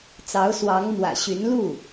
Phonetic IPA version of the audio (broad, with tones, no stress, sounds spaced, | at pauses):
t͡s ɑ˧˥ ʊ̯ s w ɑ˧˥ ŋ m w ä̰˨˩ ɕ y˧˥ n l u˥˩